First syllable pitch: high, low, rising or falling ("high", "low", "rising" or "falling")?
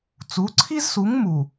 rising